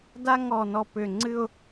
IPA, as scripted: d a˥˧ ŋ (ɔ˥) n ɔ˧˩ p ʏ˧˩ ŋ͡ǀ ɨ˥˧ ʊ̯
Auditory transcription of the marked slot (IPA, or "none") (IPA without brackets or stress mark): ɔ˧˩